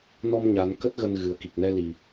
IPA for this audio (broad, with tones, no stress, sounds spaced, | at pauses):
n ɔ˧ m ɲ a˨˦ n k ə˦˥ t̚ ɣ ə˧ n ɣ ɨ˨˩ ə̯ k i˨˩ k̚ n ɛ˧ l i˨˩